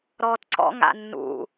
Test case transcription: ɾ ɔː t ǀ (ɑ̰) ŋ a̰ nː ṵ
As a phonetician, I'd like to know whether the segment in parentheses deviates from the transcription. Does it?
yes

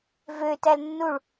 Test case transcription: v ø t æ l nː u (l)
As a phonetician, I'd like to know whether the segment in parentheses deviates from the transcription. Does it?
yes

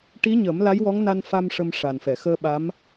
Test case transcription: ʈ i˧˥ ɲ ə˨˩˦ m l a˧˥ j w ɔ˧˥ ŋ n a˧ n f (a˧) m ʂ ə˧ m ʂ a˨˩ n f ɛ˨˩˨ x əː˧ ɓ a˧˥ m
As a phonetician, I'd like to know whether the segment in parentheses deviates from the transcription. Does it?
no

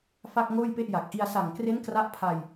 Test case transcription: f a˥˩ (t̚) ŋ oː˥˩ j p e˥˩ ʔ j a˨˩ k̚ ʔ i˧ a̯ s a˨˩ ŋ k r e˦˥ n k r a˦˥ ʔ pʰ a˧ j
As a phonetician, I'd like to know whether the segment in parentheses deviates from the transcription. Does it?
yes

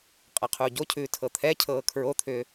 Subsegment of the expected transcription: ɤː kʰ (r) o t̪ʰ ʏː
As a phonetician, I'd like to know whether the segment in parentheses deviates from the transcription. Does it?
yes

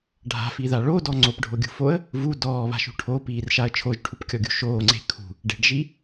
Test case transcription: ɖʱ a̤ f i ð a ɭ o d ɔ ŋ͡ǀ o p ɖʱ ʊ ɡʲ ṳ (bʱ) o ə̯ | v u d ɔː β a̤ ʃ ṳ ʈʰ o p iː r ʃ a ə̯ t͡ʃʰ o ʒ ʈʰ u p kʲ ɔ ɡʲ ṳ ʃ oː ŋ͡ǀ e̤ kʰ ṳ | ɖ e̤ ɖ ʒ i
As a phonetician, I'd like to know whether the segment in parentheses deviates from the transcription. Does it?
yes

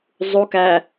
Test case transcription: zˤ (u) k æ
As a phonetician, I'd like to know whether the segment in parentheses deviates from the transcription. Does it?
no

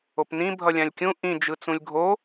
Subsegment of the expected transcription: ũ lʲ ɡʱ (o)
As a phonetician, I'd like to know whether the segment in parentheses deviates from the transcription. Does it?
no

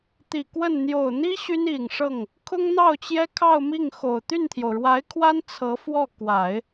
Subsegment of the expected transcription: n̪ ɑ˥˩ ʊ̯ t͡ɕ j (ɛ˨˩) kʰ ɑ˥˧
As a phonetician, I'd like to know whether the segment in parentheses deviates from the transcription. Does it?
yes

